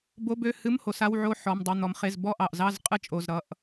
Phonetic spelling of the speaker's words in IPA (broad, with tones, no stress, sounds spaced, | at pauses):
b o˧˥˧ b ø˧˥˧ h ɨ˧˥˧ m h o˩˧ s a˧˥˧ w ʕ o˥˧ ħ ɔ˩˧˩ m dˤ ɨ˩˧˩ n̪ ɔ˩˧ m χ e˩˧˩ z b ɔ˥˧ ʔ ɑ˩˧˩ ʔ z ɑ˥˧ z qʼ ɨ˥ t͡ʃʼ o˩˧˩ z ɾ ʌ˩˧˩ ʔ